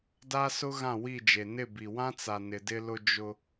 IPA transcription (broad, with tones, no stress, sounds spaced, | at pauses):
d a˦ s ʊ˦ ɣ ã˦˨ w i˦˨ d͡ʒ e˨ n ɪ˦˨ b i˨ w ã˦ t͡s a˨ n ɪ˨ d ɪ˦ l ʊ˦ d͡ʒ ʊ˦